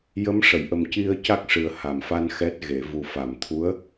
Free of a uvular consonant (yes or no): yes